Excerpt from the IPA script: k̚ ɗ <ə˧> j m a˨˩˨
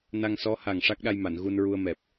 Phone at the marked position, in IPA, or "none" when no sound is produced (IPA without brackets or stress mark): a˧